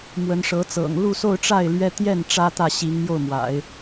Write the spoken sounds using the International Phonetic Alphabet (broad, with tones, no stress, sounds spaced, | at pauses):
m w ə˧˥ n ʂ ɤ˧˥ t͡s ɤ̰˨˩ ŋ l u˥˧ s o˥˧ ʊ̯ ʈ͡ʂ a˥˩ ɪ̯ l ɥ ɛ˥ t̪ j ɛ˥˩ n ʈ͡ʂ ä˥ t̪ ä˥˩ ɕ i˧˥ ŋ m j o˥˩ ʊ̯ m w a̰˨˩˦ ɪ̯